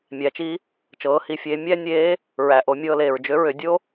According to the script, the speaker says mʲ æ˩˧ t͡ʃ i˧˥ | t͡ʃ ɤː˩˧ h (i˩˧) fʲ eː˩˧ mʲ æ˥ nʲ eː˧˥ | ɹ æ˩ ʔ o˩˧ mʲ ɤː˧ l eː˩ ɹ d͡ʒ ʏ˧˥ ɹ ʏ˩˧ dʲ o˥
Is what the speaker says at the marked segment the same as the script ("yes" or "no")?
yes